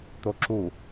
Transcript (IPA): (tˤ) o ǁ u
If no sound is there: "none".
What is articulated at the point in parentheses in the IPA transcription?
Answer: t̪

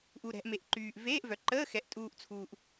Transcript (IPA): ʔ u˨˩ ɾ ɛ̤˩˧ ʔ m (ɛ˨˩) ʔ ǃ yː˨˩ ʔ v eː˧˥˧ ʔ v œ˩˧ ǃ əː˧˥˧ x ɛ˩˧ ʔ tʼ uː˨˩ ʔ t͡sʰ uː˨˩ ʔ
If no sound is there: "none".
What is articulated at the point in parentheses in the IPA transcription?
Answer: e˨˩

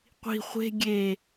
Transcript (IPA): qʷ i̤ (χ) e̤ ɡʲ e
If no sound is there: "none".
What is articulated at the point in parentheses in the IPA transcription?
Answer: χʷ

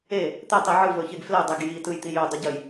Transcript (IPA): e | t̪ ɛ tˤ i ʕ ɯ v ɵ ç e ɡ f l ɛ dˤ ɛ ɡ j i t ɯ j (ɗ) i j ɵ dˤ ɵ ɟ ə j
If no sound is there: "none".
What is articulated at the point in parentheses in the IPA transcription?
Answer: t̪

